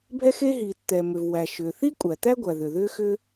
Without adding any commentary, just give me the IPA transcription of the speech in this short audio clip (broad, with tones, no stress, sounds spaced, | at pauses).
bʱ ɛ˥ x e˥ ɦ iː˩ t t̪ ɛ˩ m ʏ˩ v w æ˩ ʃ ʏː˩ θ i˥ kʷʼ æ˩ t̪ æ˥ ɡʷ æ˩ ð ʏ˩ ð ʏː˥ x ʏ˥